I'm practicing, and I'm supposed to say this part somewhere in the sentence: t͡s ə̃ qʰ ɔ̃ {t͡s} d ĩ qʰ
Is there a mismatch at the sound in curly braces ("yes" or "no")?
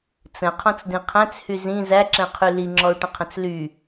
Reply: no